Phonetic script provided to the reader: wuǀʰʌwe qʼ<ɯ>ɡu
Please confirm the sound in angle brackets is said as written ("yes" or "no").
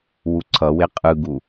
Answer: yes